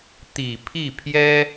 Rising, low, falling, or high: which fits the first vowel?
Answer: low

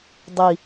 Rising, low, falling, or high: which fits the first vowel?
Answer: low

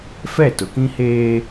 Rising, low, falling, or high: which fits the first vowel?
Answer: falling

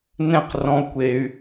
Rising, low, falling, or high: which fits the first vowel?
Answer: falling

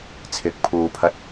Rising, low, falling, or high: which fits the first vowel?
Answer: rising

